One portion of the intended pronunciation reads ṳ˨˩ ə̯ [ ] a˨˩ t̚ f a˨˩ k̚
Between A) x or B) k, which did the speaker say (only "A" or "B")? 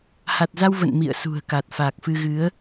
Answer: B